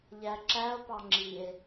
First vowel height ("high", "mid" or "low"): low